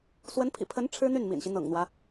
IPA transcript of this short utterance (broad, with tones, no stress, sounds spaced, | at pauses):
s w ə˧˥ n pʰ ḭ˨˩ pʰ ə˧˥ n ʈ͡ʂʰ ɻ̩˥ n̪ y˥˩ n m ḭ˨˩ n ɕ i˦ n̪ ɤ̰˨˩ ŋ n̪ w ä˦